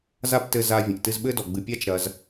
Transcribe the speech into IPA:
za˥ptɘ˧ za˧ vʲɐ̃˩ʔtɨ˧zɓɘ˥dɔ˩ ɡ͡bɨ˩pʲa˥t͡ʃɾɐ˩z

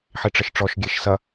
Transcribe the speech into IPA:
ħiʈ͡ʂəʃʈ͡ʂɔʃ ɡʲeʃsɐ

